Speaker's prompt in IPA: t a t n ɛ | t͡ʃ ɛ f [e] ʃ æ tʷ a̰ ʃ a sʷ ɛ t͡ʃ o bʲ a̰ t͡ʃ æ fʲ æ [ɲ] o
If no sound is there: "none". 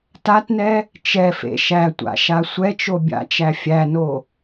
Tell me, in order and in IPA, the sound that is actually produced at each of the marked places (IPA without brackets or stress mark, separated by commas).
ḛ, n